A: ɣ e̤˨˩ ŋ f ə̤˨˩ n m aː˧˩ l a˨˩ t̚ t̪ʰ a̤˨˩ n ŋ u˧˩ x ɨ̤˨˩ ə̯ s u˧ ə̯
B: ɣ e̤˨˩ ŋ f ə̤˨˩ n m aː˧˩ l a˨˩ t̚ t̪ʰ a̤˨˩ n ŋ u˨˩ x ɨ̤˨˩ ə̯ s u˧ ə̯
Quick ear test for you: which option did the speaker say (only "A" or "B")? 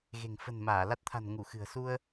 A